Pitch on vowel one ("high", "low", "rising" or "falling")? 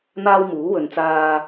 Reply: high